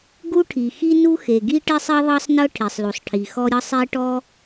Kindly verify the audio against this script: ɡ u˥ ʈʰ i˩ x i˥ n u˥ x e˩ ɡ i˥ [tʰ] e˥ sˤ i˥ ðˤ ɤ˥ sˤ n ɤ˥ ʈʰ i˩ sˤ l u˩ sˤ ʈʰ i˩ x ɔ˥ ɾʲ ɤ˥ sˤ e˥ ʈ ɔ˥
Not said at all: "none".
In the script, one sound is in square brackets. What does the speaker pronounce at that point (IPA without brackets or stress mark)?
ʈ